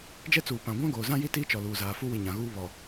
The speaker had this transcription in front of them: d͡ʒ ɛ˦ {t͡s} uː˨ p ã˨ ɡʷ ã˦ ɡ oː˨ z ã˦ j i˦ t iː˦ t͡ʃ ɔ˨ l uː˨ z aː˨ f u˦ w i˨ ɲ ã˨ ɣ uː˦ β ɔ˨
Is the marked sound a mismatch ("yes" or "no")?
no